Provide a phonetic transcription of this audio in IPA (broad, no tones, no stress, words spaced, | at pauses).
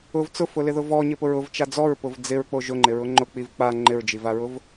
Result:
ʊv t͡sʊfʊlɪðʊ vɔɲɪpʊɹ ʊvt͡ʃa d͡zɔɹpʊv d͡zɪɹk͡po ʒʊŋ͡ǃɪɹʊ ŋ͡ǃʊk͡piv k͡pa ŋ͡ǃɪɹd͡ʒivaɹʊv